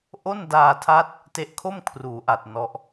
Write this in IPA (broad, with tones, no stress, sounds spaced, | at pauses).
ʔ o˥˩ n d aː˧ tʰ a˦˥ t̚ | t e˦˥ ʔ kʰ o˥˩ m kʰ r uː˩˦ ʔ a˨˩ t̚ n ɔ˦˥ ʔ